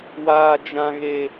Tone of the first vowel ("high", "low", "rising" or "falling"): low